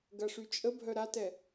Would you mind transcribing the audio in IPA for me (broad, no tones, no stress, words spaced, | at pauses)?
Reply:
ɡɐʂyt͡ʃʼəbʱœ ɾatɛ